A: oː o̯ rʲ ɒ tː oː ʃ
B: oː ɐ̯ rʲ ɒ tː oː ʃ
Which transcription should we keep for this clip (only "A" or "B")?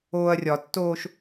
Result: B